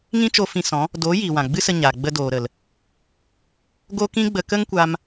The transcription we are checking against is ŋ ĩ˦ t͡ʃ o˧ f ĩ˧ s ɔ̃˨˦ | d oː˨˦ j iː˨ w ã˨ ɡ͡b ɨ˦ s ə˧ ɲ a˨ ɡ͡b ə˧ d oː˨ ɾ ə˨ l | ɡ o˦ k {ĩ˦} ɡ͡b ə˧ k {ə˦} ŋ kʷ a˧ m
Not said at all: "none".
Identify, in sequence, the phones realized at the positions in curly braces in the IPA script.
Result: ĩ˦, ə˦

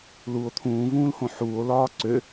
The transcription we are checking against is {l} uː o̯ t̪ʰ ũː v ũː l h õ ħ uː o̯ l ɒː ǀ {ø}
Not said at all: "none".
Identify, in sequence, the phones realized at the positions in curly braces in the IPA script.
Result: l, ø

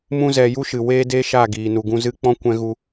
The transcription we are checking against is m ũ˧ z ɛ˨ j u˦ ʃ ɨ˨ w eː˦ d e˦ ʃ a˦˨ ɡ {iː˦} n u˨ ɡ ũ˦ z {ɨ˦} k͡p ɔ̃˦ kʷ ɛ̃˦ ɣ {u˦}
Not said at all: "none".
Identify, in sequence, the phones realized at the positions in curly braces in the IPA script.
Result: iː˨, ɨ˦, u˦

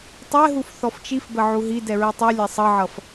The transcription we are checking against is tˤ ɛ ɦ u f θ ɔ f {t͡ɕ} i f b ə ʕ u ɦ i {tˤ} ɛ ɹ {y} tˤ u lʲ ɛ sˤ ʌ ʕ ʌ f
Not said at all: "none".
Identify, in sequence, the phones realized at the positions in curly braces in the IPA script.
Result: t͡ʃ, d, i

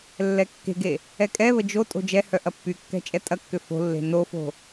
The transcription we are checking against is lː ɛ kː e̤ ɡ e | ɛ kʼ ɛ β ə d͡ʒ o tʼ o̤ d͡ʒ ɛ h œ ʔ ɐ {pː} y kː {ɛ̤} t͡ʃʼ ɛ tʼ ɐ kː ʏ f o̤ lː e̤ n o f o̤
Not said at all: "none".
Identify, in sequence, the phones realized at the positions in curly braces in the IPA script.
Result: pː, ɛ̤

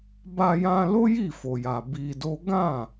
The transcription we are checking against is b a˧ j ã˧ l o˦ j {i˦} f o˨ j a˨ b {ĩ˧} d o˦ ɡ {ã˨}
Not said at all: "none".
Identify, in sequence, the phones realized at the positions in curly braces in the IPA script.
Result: i˦˨, i˧, ã˦˨

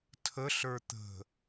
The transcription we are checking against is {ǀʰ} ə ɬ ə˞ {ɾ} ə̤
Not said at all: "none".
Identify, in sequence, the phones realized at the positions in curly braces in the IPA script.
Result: tʰ, t̪

